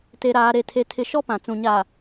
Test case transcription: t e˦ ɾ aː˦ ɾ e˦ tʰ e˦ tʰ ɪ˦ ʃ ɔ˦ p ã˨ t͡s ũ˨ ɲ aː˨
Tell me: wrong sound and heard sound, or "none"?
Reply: none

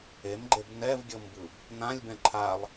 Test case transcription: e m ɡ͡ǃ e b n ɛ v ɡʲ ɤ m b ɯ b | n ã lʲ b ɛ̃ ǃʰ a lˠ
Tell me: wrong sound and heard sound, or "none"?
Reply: none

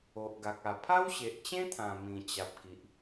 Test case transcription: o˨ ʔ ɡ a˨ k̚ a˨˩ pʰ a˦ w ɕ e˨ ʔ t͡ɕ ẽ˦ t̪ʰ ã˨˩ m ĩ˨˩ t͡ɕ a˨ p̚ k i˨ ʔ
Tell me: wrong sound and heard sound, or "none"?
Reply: none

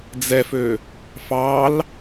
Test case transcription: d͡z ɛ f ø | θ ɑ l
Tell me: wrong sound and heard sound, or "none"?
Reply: θ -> f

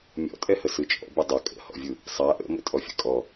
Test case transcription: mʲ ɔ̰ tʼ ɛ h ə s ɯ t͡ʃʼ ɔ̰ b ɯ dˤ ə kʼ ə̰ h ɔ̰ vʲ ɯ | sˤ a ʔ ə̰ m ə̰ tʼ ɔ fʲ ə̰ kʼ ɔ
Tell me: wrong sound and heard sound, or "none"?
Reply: none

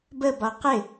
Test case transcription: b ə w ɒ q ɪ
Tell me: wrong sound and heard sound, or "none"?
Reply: w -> b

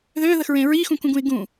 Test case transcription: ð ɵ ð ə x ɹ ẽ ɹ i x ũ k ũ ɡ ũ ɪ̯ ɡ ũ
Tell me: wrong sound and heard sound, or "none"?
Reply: ɵ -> ø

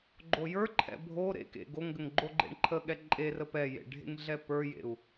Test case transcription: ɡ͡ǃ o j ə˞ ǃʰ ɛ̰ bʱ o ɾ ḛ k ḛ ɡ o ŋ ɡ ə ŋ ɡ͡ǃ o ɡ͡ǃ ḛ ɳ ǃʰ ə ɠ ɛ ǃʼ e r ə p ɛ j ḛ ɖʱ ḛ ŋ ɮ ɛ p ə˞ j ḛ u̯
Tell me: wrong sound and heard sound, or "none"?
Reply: none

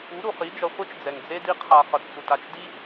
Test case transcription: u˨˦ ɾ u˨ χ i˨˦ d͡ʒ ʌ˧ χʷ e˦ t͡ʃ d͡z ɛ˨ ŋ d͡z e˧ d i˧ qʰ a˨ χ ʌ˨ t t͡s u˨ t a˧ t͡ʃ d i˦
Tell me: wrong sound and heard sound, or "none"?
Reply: none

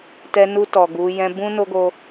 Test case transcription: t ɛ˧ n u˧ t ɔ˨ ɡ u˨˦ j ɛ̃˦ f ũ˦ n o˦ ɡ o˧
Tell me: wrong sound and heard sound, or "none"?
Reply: f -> b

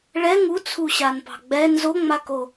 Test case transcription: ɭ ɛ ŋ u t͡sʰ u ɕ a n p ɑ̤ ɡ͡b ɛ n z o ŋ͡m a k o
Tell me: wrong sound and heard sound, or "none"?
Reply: none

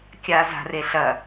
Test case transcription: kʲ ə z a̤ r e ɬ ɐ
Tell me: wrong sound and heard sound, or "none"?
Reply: ə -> a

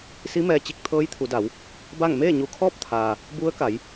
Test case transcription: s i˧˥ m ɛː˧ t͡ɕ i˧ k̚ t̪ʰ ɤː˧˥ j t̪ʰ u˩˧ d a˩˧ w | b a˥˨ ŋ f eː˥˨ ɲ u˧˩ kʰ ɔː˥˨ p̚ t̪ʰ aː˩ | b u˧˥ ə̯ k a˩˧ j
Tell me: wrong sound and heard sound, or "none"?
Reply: f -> m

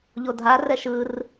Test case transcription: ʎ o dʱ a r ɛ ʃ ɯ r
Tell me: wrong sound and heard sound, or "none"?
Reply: none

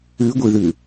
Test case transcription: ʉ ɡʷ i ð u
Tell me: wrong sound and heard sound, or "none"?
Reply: u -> ʉ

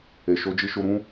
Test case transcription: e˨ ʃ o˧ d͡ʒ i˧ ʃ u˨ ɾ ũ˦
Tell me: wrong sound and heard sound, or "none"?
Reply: u˨ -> u˧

